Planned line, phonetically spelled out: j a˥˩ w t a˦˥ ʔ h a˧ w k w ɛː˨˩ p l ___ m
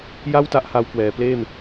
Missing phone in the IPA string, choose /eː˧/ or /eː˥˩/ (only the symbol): eː˥˩